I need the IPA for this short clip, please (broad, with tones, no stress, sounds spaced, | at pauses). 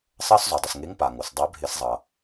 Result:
sˤ ɜ˦ s zˤ o˩ dˤ ɪ˩ s ŋ e˨˥ ŋ p a˩ ŋ o˩ s dˤ ɜ˨˥ bʱ ɪ˧˩˧ s zˤ ʌ˩